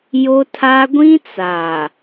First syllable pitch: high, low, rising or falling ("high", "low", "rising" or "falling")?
high